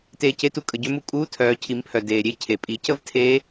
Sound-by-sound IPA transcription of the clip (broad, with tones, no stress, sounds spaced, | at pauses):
t eː˧ c e˧˥ t u˧ kʼ ə˩˧ ɟ ø˧˥ m u˧ kʼ uː˧˥ tʰ œː˩˧ cʰ i˩˧ m pʰ œ˩ d eː˩ ɾʲ e˥ cʰ e˩ pʼ i˩˧ c ə˥ v tʰ eː˧˥